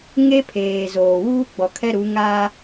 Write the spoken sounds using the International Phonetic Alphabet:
ŋe˦pʰeː˨ zoː˨wuː˦ ɡ͡bɔ˨kʰɛ˦ɾu˨˦ ŋaː˦

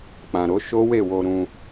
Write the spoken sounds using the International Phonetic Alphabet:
k͡pã˨ɾo˨˦ ʃo˦we˦˨wo˧ ɾũ˧

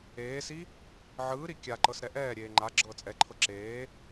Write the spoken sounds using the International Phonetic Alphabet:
eːsi | ʕɯːɾi kʲaǃɤs ɾɛʔɛːɾʲeː ŋ͡ǃa ɡ͡ǁɤːt͡sʼɛǃʰɤ ǁeː

